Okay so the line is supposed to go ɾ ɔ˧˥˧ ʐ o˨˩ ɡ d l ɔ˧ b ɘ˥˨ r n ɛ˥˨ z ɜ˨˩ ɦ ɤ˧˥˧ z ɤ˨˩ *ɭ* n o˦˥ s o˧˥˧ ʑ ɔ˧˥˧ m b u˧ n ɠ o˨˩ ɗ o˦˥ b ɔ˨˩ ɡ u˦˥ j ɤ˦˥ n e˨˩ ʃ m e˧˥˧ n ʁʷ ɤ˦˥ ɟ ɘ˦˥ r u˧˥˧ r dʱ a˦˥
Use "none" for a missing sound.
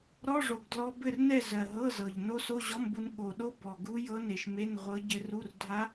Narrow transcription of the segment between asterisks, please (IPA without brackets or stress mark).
ʎ